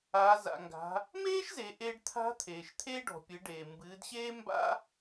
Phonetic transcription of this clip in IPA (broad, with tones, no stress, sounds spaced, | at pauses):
aː˩˧ z a̰˩ ŋ ɡ a̤˩˧ | m eː˥ ʃ z e˩˧ ʔ eː˧ ɖ t̪ʰ a̤˧˥ t̪ʰ eː˩ ʃ t̪ʰ eː˥ ɖ ɔ̤˩ pʲ ɨ˩˧ ɖ eː˩ m b ɨː˩˧ d ɕ eː˥ m b a̰˥